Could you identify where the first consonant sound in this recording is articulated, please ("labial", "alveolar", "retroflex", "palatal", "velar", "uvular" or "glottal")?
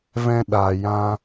labial